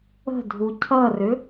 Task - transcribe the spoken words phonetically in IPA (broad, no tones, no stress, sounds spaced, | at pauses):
ə̤ dʱ u cʰ ʌ r ʏ